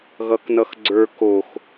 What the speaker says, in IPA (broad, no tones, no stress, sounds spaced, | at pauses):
ɣ ʌ k n ʌ x ɡ͡ǀ ə˞ k o x